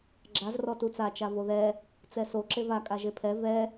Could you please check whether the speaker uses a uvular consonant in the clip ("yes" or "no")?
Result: no